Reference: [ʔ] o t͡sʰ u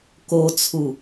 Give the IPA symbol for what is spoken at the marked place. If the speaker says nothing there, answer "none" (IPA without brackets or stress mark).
k